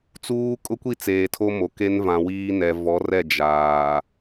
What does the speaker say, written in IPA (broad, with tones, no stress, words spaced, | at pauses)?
t͡suː˦ kʼʊ˦kʷi˦˨ t͡seː˨tʰo˦mo˨ ke˦n vã˨wiː˦nɛ˨ vɔ˨˦rɛ˦˨ d͡ʒaː˨